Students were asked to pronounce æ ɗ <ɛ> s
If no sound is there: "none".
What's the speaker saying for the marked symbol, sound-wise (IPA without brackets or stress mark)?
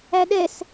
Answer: ɛ